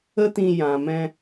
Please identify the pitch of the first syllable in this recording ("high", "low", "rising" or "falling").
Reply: high